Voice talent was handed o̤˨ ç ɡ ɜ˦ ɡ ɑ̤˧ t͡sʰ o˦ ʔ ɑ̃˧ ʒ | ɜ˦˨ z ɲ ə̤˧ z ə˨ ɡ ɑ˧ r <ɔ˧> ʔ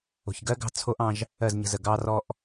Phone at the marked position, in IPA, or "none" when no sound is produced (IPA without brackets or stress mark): ɔ˧